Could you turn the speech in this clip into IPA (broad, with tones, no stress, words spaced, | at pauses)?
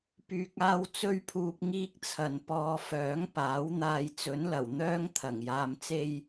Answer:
pyː˧k̚aː˥w t͡sɵ˥ɥpʰuː˧p̚ ŋiː˥k̚t͡sʰɐ˨npɔː˧ fœː˨˥ŋpaː˨˥wn̪aː˧j t͡sɵ˨˥nlɐ˨˩w n̪œː˥ŋ t̪ʰɐ˨˩ŋjaː˧mt͡se˥j